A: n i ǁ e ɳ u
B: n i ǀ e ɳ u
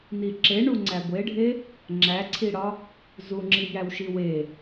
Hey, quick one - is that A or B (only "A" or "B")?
A